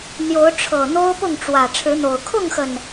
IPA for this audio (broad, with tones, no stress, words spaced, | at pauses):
n̪jo˨˦ʊ̯ʈ͡ʂʰɤ˨˩n̪o˦ʊ̯ pʊ˥˨ŋʈ͡ʂwä˨˩ ʈ͡ʂʰɻ̩˨˦n̪o˨˩ʊ̯ kʰʊ˥˨ŋxə˨˩n